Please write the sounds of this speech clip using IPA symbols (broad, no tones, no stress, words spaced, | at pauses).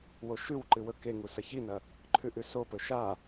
woʃʉwǃɨ wɵkeŋu sɐçinɐ | ǃʰʉʔʉsopɵ ʃa